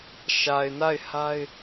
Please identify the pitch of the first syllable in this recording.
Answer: low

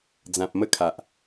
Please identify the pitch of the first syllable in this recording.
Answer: low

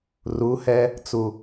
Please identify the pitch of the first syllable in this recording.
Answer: rising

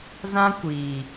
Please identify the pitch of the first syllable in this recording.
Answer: high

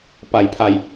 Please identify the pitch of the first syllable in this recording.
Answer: low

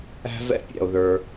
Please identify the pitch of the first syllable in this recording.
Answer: high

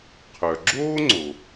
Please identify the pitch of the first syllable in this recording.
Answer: low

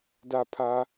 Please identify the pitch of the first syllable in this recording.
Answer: low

